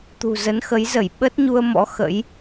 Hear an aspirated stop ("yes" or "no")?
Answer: no